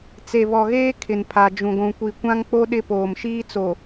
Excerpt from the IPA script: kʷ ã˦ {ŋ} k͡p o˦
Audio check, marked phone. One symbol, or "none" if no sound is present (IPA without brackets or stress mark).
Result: ŋ